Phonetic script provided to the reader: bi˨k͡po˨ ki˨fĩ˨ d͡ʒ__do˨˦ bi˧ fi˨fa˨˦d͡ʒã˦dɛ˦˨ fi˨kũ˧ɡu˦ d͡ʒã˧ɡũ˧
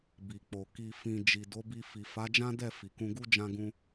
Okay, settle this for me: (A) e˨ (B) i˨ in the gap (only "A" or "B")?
B